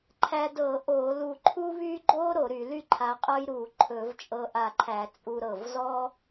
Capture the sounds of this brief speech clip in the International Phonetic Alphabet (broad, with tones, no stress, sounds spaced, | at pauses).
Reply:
ǃʰ æ˧ d ɤ˧˩˧ ʔ o˧˩˧ l u˧˩ ǃʰ u˥ β y˥ ɡ͡ǃ o˥ ɾ o˧˩˧ ɾ y˧˩˧ l y˥ ǃʰ a˧ qʼ ɤ˥ j ɾ u˧˩˧ ǃʰ ɵ˧˩˧ v t͡ʃʼ ɤ˧ ʔ a˧˩ ǃʰ æ˧˩˧ t͡sʼ u˧ ɾ ɤ˧˩ v z ɔ˥